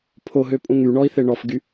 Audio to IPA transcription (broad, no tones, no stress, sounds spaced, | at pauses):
pʰ o ɦ ø pʼ ũ ŋ y ɳ ɔ i̯ θ e ɳ ɔ f ɡ y